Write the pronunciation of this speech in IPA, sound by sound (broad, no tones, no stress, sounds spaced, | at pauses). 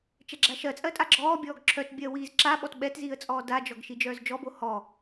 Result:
t͡ʃ ɛ ɡ͡ǁ a ʃ ɜ t͡sʼ ɜ tʼ a ɡ͡ǁ ɔː bʲ ɔː ɡ ǁʰ œ t bʲ ɜ w iː z ǁ a ɓ ɔ t ɓ ɛ t z iː ə̯ t͡sʼ ɔː d a d͡ʒ ɔ ɡ ʃ i d͡ʒ œː z d͡ʒ ɔ b o h ɔ